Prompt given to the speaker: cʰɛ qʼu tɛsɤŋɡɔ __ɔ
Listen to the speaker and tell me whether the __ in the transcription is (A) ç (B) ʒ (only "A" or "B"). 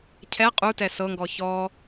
A